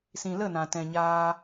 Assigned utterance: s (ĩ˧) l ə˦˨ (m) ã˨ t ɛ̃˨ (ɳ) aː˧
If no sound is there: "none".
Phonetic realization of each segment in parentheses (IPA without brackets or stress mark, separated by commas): ĩ˨, n, ɲ